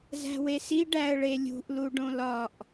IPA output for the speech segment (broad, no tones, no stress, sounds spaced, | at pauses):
z æ̤ w e s i ɖ æ ə̯ ɭ e lʲ ṳ ʔ l u ɖ õ l ɒ ʔ